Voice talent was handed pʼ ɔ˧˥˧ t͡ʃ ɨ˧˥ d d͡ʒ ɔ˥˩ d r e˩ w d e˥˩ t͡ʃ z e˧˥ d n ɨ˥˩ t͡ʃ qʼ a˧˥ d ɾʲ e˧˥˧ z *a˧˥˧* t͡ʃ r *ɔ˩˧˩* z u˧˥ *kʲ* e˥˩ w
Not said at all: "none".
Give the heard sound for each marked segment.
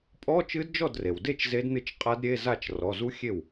a˥˩, ɔ˩˧˩, xʲ

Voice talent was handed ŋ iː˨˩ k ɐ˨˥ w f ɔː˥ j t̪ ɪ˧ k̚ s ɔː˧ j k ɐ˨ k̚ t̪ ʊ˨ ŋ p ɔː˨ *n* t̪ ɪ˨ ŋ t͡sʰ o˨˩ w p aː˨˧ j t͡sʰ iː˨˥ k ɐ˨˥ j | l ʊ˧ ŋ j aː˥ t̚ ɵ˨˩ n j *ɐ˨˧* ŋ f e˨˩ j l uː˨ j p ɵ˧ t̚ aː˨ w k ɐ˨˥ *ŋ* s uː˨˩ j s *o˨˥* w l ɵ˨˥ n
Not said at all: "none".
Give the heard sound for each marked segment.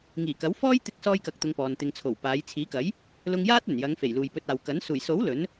n, ɐ˨˧, n, o˨˥

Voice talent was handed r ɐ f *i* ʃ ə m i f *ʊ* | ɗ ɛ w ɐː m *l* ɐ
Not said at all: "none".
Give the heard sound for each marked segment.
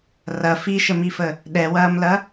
i, ə, l

